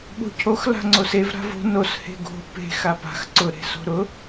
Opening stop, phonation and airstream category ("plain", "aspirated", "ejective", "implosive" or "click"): implosive